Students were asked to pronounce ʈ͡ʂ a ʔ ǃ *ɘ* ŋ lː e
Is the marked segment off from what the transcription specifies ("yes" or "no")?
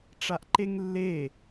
yes